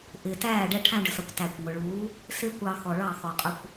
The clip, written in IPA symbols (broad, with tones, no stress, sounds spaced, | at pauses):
ʔ ɪː˨ t æː˦˨ ɖ ɛ˧ ʈʰ æ̃˧ ɖ ə˨ s ʌ˨ kʷ t æ˨ kʷ ŋʷ ɪ˨ ɭ uː˨˦ | s ɪː˦ kʷ ɑ˧ x ɔ˨ ɭ ɑ˦˨ x ɔ˨ qʼ ʊ˧ kʷ